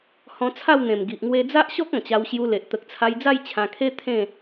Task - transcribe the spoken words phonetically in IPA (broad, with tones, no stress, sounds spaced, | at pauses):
h ɔ̃˧ t͡sʰ a˥˧ w n̪ ẽ˨˩ m ɡ i˨ ʔ ŋ w e˧ d͡z a˦ ʔ ɕ ɔ˦ k̚ ɔ̃˨˩ t͡ɕ a˧ w ɕ j u˧ l e˨ ʔ t̪ ə˨ k̚ t͡sʰ a˧ j d͡z a˥˧ j t͡ɕʰ ã˧ kʰ e˦ t̪ʰ ẽ˥˧